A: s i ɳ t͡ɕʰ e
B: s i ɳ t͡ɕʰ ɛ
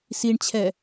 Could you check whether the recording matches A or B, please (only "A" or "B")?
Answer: B